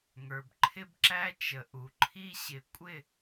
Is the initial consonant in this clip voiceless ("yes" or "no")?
no